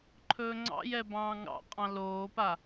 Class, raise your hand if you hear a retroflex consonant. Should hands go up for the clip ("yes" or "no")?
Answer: no